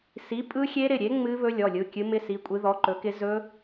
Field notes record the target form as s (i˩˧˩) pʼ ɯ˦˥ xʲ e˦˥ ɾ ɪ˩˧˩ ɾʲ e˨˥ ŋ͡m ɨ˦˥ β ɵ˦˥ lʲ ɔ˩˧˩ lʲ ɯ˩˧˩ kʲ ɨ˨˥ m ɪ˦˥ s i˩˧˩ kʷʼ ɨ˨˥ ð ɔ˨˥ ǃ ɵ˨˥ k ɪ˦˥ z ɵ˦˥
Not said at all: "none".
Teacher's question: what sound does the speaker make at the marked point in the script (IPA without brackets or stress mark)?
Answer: i˨˥